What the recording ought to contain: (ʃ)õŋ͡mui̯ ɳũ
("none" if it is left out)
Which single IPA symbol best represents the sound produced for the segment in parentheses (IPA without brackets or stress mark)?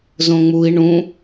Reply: z